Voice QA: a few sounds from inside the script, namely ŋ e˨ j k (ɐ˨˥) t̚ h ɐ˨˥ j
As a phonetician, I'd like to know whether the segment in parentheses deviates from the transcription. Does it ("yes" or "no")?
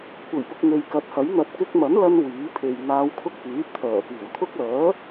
no